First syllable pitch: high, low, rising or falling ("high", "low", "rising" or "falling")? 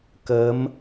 rising